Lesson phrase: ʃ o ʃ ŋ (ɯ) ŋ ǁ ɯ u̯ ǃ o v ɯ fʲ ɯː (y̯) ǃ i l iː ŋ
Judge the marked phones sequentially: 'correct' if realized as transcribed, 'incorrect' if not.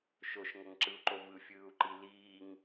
incorrect: ɤ, incorrect: u̯

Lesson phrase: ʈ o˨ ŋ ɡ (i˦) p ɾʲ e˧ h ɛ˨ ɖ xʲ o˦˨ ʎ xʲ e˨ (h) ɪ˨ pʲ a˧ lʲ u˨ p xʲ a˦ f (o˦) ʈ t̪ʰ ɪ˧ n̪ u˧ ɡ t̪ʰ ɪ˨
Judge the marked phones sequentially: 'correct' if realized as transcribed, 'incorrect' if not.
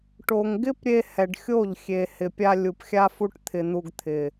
incorrect: ɪ˦, correct, incorrect: u˦

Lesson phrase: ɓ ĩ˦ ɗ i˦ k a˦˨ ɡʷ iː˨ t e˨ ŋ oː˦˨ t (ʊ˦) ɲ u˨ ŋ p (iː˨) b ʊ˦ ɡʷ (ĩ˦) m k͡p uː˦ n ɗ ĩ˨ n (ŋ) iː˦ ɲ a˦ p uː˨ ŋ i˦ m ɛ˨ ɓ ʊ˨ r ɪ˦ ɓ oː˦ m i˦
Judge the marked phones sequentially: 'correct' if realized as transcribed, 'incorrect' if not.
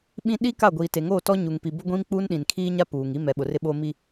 incorrect: ɔ˦, incorrect: i˨, correct, incorrect: kʰ

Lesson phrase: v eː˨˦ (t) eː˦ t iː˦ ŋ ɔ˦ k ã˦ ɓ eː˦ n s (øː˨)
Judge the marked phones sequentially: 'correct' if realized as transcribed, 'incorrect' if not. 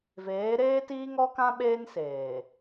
incorrect: ɾ, incorrect: eː˨

